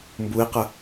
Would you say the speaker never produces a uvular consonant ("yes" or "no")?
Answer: no